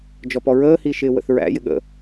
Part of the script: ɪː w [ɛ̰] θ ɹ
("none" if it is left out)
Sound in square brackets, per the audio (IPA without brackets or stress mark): ə̰